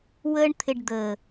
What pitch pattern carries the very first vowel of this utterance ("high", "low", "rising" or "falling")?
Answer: high